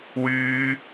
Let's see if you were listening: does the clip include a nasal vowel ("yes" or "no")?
no